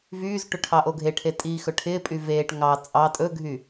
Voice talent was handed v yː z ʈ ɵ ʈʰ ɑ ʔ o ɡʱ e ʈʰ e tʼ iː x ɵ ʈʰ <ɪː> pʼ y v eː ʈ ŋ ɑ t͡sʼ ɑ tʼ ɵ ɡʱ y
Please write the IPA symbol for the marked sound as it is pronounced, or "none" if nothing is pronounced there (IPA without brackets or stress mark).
ɪː